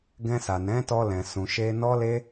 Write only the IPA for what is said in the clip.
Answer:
ɡɛ̃˧sa˨nɛ̃˨˦ tɔ˧lɛ̃˨ sũ˨ʃe˧ nɔ˦ le˦

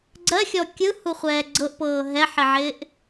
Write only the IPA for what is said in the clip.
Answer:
ɡ͡ǀɜxʲɔ kʲɯhuχʷɛː ɡ͡ǀɤʔpɤː ɦɛħɪʕɪːʔ

